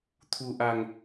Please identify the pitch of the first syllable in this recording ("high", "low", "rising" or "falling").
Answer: low